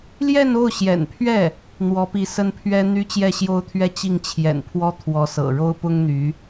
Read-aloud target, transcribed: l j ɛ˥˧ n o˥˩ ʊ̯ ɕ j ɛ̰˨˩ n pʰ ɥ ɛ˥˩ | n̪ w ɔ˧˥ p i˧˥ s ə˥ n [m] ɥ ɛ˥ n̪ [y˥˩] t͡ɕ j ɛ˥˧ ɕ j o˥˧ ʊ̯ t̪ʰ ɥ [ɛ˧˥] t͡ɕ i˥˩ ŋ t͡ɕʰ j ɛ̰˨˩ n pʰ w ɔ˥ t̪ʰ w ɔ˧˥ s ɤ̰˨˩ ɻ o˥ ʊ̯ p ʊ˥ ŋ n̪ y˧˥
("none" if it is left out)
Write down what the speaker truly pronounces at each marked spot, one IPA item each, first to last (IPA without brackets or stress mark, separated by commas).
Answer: pʰ, y˥, ɛ˥˧